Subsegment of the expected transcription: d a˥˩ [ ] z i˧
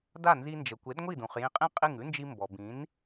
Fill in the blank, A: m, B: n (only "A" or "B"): B